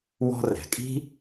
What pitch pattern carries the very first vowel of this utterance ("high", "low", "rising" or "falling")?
high